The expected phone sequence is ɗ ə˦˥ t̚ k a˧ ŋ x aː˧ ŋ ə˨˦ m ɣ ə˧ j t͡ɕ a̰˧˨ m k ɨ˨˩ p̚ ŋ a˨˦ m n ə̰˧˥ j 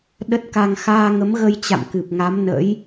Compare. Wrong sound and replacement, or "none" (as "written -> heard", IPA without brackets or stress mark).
none